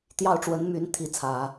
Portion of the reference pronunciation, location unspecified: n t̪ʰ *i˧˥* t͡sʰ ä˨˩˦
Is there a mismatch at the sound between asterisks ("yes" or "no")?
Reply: no